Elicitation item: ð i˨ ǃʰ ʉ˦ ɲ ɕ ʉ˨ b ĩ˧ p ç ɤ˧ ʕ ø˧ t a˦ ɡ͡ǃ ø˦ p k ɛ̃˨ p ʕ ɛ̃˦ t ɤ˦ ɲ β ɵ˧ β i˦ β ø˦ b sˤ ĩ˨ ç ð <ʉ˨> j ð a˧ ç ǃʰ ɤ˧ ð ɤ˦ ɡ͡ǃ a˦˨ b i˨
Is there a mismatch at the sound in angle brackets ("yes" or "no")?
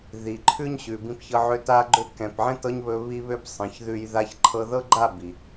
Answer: yes